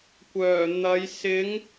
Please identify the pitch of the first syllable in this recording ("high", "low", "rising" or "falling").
low